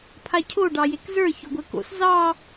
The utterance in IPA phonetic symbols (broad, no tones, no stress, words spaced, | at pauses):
pʰacʰo ɖɑjekzə˞ çoɡʷɛko̰s zɑ